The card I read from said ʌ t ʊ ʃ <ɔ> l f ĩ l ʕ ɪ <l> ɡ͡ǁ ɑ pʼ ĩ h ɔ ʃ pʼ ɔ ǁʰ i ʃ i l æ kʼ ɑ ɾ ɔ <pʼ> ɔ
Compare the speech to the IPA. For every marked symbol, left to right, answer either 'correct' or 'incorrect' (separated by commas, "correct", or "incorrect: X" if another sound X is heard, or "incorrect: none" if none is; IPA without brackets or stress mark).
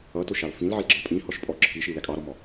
incorrect: ɑ, correct, incorrect: m